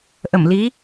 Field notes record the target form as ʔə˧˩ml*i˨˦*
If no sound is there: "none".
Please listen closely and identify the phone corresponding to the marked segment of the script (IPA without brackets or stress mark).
i˨˦